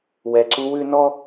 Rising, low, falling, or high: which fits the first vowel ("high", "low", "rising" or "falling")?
low